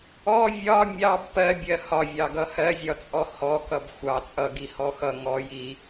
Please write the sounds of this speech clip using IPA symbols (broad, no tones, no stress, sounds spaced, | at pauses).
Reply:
ɔ vʲ ɒ mʲ ɑ b p ɜ bʲ ɜ h ɒ vʲ ɑ ɡ ʌ h ɜ zʲ ɒ t͡sʼ ɔ h ɔ k ʌ b xʷ ɑ t͡sʼ ʌ ɡ i h ɔ x ʌ ŋ ɔ j i